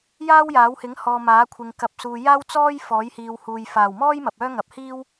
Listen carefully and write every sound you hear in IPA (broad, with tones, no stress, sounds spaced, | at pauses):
j aː˥ w j aː˨˥ w h ɪ˨˥ ŋ h ɔː˨ m aː˨˥ kʷʰ ɪ˨ ŋ k ɐ˨˥ p̚ s uː˨ j aː˥ w t͡s ɔː˥ j f ɔː˨˥ j h iː˨ w h uː˨ j f aː˨˩ w m ɔː˥ j m ɐ˨ p̚ œː˥ ŋ ɐ˨˥ p̚ h iː˥ w